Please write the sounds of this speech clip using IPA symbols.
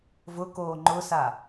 v ʊ k oː ŋ͡ǃ ʊ s a

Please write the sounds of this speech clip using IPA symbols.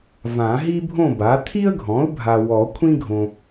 v ã˨˩˦ ɦ i˥ bʱ õ˥˨ b a˩˥ t̪ʰ i˥ ə̯ ɡʱ ɔ̃˩˥ ʊ̯ bʱ a˨ w ɔ˨˩˦ kʷʰ ĩ˥ ɡʱ õ˨

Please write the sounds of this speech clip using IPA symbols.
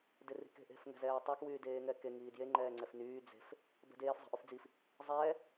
d e r i̤ k e̤ ʔ e̤ f ŋ ɛ̤ z ɛː tˤ ɛ k w yː d eː ŋ ɛ k e ŋ iː d j e ŋ͡ǃ ɛː ŋ͡ǀ ɛ f n yː d͡z e̤ f | b ɛ̤ d eː f zˤ i̤ ʔ y f d͡z i f | zˤ ɛː

